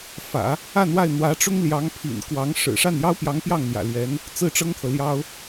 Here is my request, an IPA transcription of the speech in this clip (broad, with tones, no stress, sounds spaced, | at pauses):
f ä̰˨˩˦ | a˥˧ n w a˥˩ ɪ̯ n̪ w ä˧˥ ʈ͡ʂ ʊ˥ ŋ l j ɑ˧˥ ŋ pʰ ḭ˨˩ n k w ɑ˧˥ ŋ ʂ ɻ̩˨˩ ʂ a˥˩ n j ɑ˥ ʊ̯ p j ɑ˧˥ ŋ p j ɑ˥˩ ŋ n̪ j ä̰˨˩ l ɥ ɛ˧˥ n | t͡s ɹ̩˥˩ ʈ͡ʂ ɤ˥ ŋ t̪ʰ ɤ˨ l j ɑ˥ ʊ̯